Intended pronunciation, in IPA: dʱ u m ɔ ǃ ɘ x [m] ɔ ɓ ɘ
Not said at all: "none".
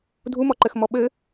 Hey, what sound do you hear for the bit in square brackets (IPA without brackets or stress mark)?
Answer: m